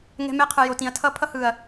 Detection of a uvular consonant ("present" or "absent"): present